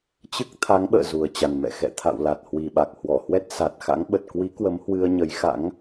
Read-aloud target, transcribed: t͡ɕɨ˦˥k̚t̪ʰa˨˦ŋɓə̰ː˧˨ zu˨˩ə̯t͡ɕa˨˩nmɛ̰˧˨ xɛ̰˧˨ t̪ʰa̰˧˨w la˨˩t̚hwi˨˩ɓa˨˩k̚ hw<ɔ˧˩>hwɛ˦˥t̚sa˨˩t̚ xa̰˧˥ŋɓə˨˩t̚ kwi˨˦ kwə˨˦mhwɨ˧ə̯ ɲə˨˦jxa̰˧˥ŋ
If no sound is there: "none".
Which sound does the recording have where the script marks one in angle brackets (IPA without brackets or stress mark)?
ɔ˧˩